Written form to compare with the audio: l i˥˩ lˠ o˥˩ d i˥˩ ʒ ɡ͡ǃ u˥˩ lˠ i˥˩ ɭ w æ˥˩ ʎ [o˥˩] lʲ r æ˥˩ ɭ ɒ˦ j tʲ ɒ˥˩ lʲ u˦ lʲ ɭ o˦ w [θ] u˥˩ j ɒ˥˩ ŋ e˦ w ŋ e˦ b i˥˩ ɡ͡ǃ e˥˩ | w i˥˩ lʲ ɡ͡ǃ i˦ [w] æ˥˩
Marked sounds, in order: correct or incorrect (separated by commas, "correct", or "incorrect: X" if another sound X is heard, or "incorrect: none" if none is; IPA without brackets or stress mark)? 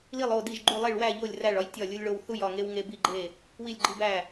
correct, correct, incorrect: b